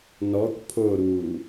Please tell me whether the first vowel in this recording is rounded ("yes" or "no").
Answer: yes